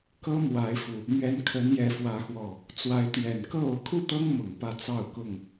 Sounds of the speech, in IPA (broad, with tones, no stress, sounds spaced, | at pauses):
k ɤ˦ m w a˨˦ ɪ̯ f u˨˩ | m ɥ ɛ˨˦ n kʰ ə˨˦ n j ɛ˨˦ f w ä˨˦ x w ɔ˨˩ | t͡s w a˨˦ ɪ̯ t̪ ɥ ɛ˨˩ n k ɤ˥˨ o˨˦ ʊ̯ kʰ u˥˨ t̪ ɤ˦ ŋ m ʊ˨˩ ŋ p ä˥˨ t͡s ɑ˥˨ ʊ̯ k ʊ˥˨ ŋ